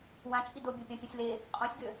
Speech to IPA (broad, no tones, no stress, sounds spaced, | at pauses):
w ã t͡ʃʼ i d o bʲ o pʲ ã pʲ ũ sʲ l e | qʼ õ sʲ ɡ ø